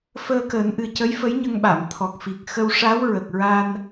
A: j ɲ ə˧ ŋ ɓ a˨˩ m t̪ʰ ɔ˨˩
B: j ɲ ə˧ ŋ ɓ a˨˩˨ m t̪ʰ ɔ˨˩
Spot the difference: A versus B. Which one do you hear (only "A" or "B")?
B